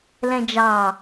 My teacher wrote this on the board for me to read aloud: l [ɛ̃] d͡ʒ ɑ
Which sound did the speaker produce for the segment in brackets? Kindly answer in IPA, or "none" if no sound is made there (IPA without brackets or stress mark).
ɛ̃